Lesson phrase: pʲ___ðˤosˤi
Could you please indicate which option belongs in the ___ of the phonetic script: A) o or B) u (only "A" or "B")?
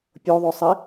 A